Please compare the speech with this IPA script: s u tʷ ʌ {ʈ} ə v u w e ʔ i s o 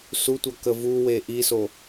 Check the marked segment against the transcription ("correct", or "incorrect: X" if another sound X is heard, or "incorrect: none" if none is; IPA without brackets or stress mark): incorrect: k